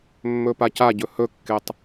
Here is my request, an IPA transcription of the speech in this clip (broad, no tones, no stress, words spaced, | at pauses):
mːɵpacaɟɵ hɵkːetˤ